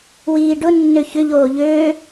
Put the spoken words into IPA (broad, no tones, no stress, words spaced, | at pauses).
wiːɖʊ nːøçʏ ʎoːʎøː